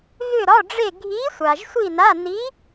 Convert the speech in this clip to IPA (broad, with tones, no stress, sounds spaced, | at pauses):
ɣ ʏ˥˧ ɾ ɒ˧˥˧ ɖ͡ʐ e˥˧ ɡʱ i˧˥ sʷ a˨ ʒ sʷ i˥˧ n a˧˥˧ n i˧˥